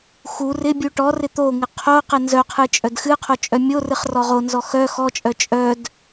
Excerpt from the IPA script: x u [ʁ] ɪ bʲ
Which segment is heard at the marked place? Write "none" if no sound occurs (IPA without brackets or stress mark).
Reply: r